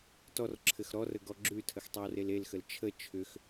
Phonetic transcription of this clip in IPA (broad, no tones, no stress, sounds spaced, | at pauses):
t ɔ r ǁʰ ɘ x ɾ ɔ r ə ɡ ɔ ɡ͡ǁ ʉ tʰ ə x tˤ ɘ w r e l e l x ə l t͡ʃʰ ə t͡ʃʰ ʏ x